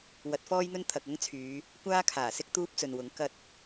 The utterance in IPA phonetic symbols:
w ɐ˨˥ t̚ f ɔː˥ j n̪ ɵ˥ n t̪ʰ ɐ˨ k̚ ɐ˥ ŋ t͡sʰ yː˨˧ | kʷ aː˥ kʰ aː˨˩ s ɪ˥ k̚ t̪ uː˥ p̚ t͡s ɵ˨ n w ʊ˨˥ ŋ k ɐ˧ t̚

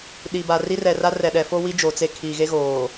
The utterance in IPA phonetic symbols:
ɗ i˨ b a˨ r i˦ r ɛ˨ r a˦ r ɛ˨ ɗ ɛ˨ f o˦ w i˦ d͡ʒ o˨ t͡s e˦ kʰ i˨ ɣ e˦ ɣ oː˨

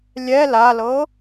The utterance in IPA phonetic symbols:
lʲ ɛ l a l ɤ

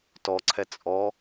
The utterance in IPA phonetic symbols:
t ɔ ǀʰ ɛ t͡sʼ ɔ

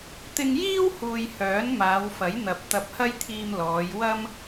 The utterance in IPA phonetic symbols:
t̪ ɪ˧ ŋ j iː˥ w h uː˨ j h œː˨˥ n m aː˨˧ w f ɐ˨˥ j n̪ ɐ˨ p̚ t̪ ɐ˧ p̚ h ɐ˥ j t̪ʰ iː˧ m l ɔː˨˧ j w ɐ˥ m

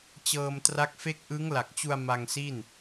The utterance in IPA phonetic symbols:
t͡ɕ ɤː˧ m t r a˦˥ k̚ f e˥˩ k̚ ʔ ɯ˦˥ ŋ l a˨˩ k̚ t͡ɕ u˧ a̯ m a˧ ŋ s i˥˩ n

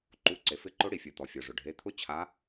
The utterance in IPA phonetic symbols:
ǃ u˩˧˩ ǀ e˩ f ɪ˨˦ ǃ ʊ˨˦ ɽ i˩ fʲ o˩ t̪ ɔ˩ fʲ ɔ˩ ʐ ʊ˩ ɖʱ e˩˧˩ t̪ʰ ʊ˦˥ t͡ɕʰ a˨˦

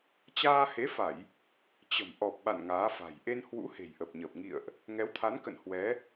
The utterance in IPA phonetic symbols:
t͡ɕ aː˧ h e˨˦ f a˧˩˨ j | t͡ɕ ə̤˨˩ m ʔ ɔ˨˩ p̚ ɓ a̰˧˨ n ŋ aː˨˦ f a̤˨˩ j ʔ e˧ n h w ṵ˧˥ h e̤˨˩ j ʔ ə˨˩ p̚ ɲ əː˨˩ p̚ ŋ ḭ˧˨ ə̯ ʔ | ŋ ɛ˨˦ w t̪ʰ a˨˦ n k ə̰˧˨ n h w ɛ˨˦

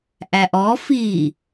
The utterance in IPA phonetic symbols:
ʔ æ ʔ ɔ f i

